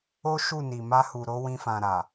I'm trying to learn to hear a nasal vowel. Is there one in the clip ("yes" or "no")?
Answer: yes